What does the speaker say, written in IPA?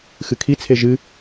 xɨkʰit͡sʰe ʒɨ

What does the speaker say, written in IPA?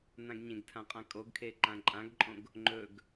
nãɡɲẽɡtʰãqʼã kʼoɡkʰe ǃãǃʼãɡǃʼõɡ | ŋ͡ǃɵɡ

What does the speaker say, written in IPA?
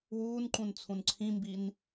wuːnǃũn t͡sʰũnǀʰĩmbin

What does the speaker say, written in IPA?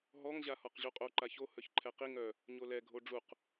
ɦɔŋ ʑahɒqʑuqʼo ǃaço hœçǃʰɛqi ŋœ | ɲolɛ ɡʱoɖ͡ʐuq

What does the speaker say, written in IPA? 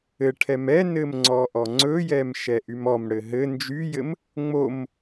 ɘʈʰɛm ɛnɘm ŋ͡ǀɔʔɔŋ͡ǀɵjɛm ʃɛʔymɔmɽɘ ɦɘ nd͡ʒyjɘm | ŋ͡mom

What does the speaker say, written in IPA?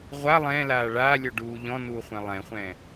ʁʷa lˠɛ̃ːlaː ɭaːlʲoɖuː ʎɔ̃nuːχʷɛ̃ lˠɛ̃χʷɛ̃ː

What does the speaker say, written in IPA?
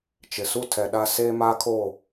t͡ʃɪ˨ su˦tʰɛ˨ɗa˦ seː˦maː˦kʰo˦˨

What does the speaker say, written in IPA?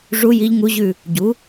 ʐu˧˥ ji˧˥ʎ ŋu˧˥ʑʉ˦˨ | ɟu˩˥

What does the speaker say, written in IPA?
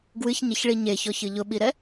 ɡwɨçɲeçɭi ɲeçɔçɨ ʎʊɓiɾɛ

